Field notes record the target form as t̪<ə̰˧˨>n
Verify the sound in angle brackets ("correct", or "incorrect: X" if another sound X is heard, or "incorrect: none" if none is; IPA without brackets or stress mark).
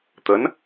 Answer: incorrect: ə˨˦